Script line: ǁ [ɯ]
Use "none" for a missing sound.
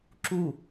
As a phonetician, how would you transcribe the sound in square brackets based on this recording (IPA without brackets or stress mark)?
u